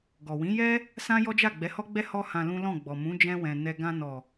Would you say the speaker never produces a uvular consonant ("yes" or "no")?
yes